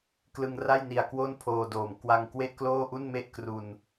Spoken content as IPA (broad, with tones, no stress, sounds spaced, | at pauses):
k l ɯ˧ ŋ r a˥˩ j n i˨˩ a̯ k w o˥˩ n pʰ oː˧ d oː˨˩ m k w a˧ ŋ k w e˥˩ ʔ k l oː˥˩ ʔ u˥˩ n m e˥˩ ʔ k r u˧ n